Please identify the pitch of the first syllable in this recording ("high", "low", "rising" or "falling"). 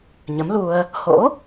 rising